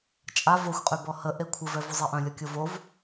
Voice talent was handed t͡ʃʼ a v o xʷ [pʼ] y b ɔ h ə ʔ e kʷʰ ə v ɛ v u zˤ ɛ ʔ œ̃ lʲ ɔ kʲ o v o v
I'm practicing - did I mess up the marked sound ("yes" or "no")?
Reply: yes